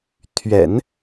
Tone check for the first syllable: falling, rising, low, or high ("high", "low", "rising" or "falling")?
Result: low